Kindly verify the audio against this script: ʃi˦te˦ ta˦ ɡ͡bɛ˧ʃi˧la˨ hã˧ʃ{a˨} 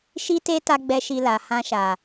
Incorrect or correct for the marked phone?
correct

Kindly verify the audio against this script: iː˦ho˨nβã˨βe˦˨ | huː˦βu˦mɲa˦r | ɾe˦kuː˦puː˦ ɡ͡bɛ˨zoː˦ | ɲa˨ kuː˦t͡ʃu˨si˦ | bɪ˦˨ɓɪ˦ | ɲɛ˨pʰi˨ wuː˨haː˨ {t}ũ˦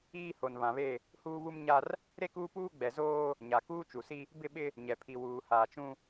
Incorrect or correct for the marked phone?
incorrect: t͡ʃ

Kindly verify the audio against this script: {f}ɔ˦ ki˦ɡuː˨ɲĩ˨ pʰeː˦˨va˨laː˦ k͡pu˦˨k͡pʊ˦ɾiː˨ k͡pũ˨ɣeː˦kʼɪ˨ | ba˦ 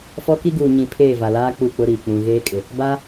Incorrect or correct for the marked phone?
correct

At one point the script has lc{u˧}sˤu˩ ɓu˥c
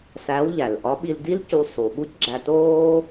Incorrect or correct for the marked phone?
correct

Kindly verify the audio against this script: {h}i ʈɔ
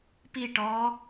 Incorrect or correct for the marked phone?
incorrect: p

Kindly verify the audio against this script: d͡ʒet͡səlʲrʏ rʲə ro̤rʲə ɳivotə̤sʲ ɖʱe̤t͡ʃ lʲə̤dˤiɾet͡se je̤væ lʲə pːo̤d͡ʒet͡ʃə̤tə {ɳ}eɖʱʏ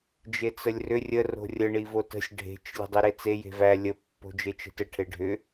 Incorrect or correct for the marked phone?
incorrect: ʈʰ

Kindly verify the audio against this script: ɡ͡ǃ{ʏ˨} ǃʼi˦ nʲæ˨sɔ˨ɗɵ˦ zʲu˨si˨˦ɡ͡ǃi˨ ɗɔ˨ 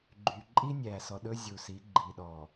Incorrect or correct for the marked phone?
incorrect: y˨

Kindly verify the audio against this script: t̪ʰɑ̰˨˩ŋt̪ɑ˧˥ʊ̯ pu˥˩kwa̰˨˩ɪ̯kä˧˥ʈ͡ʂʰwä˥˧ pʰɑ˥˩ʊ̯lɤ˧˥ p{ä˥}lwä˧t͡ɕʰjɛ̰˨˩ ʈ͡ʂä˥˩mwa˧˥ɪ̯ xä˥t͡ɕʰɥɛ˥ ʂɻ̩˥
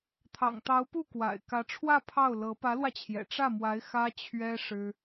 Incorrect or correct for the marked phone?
incorrect: ä˧˥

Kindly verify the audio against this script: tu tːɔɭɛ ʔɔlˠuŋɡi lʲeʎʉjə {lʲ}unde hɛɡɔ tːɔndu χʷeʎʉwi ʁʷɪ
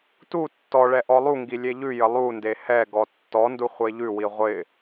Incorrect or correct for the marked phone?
incorrect: lˠ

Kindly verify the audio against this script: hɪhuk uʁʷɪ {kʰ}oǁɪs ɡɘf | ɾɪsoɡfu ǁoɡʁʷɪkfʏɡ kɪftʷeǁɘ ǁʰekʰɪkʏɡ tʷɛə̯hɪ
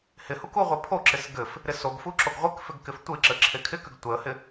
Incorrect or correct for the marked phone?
incorrect: pʰ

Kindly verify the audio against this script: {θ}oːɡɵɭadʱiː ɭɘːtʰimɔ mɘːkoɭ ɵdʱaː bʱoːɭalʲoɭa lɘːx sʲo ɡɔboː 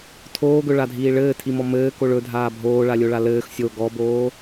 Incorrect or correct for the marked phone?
incorrect: tʰ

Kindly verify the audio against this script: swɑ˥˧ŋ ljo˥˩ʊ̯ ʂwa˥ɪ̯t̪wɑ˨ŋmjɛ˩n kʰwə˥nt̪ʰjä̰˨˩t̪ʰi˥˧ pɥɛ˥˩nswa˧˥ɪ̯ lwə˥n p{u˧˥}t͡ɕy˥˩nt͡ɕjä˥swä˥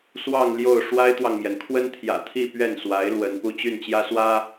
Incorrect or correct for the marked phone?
incorrect: u˥˧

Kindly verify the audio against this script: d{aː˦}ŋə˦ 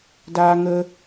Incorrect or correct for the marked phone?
correct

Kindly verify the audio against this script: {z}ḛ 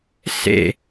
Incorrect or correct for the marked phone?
incorrect: s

